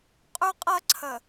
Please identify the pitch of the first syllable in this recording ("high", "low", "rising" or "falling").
high